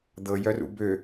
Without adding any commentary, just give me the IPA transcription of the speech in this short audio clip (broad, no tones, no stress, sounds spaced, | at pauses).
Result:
d̪ ɤ j œ r ṵ b ø